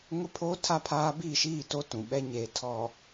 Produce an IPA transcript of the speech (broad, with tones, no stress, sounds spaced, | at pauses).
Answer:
ŋ ʊ˦ pʰ o˦ tʰ a˦ pʰ aː˦ b i˦˨ ʃ iː˦˨ t o˦ t ũ˨ ɓ ɛ˦ ɲ eː˨ tʰ ɔ˨